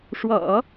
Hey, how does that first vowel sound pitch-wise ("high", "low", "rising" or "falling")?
low